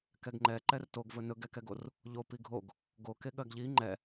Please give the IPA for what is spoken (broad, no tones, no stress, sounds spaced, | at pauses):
k ɛ ɡ ŋ͡ǃ ɛ ǃ ɛ r t o ɡ v ɵ n ɵ ɡ ɛ k ɛ ɡ o r | ʎ o p i ɡʱ o ɡ | ɡ o k e ɠ ɜ ɡ ʎ i ŋ͡ǃ ɛ